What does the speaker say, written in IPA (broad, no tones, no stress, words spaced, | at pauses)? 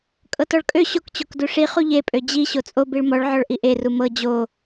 kʼɤtɔɭkʼø ɕokt͡ɕok duʂi χuʎepʼø d͡ʑi ɕot͡sʼo biɭmɔɭʕɔɭ ʔiʔeru mɤ d͡ʑo